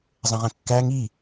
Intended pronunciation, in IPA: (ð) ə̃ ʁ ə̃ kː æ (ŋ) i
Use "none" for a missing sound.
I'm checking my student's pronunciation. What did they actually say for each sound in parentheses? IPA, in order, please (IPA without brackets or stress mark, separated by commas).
zˤ, ŋ